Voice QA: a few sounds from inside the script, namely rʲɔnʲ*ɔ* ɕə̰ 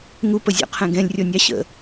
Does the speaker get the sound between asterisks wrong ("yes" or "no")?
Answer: yes